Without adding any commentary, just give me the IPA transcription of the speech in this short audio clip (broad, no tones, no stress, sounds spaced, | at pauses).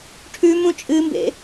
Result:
ʈʰ ʉ m ũ t͡ʃʼ ɨ m b ḛ